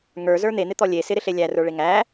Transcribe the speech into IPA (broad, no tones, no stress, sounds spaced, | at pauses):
ŋ ə˞ z ə˞ n̪ e n̪ ɪ t̪ ɔ lʲ e s ɪ ɾ ɪ ɬ e lʲ æ r ə˞ ɭ e ŋ æ